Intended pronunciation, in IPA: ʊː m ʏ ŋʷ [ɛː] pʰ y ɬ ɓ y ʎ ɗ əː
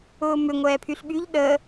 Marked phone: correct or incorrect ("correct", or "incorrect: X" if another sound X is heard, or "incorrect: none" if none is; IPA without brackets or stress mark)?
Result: correct